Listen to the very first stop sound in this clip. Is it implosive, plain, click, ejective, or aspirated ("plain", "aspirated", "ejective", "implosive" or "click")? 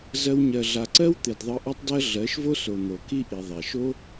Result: click